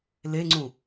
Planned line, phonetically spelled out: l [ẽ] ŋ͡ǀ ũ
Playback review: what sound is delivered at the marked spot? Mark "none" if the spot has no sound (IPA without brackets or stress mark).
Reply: e